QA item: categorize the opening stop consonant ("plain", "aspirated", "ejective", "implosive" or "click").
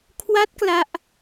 aspirated